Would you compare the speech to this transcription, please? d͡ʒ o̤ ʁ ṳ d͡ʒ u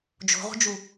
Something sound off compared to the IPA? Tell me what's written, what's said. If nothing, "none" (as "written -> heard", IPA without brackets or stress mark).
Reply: none